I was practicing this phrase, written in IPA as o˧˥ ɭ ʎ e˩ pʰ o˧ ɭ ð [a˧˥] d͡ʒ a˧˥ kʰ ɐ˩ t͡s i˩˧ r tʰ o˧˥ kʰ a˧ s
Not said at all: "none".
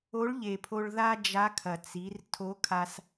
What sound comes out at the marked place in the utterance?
a˥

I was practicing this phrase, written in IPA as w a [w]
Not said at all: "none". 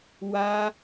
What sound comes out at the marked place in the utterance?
none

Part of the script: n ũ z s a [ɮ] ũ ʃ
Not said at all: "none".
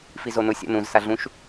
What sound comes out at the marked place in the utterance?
ɮ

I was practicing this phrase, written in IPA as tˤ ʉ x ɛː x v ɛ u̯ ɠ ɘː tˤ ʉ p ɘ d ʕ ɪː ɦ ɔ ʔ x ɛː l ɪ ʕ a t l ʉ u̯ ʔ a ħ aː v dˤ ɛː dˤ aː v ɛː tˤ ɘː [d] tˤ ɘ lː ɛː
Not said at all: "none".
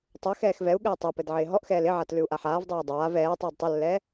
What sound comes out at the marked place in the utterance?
d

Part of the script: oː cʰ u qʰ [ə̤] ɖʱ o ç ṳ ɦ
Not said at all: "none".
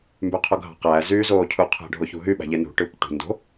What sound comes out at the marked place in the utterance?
æ̤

